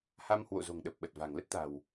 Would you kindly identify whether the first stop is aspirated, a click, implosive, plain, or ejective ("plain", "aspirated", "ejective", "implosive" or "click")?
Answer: implosive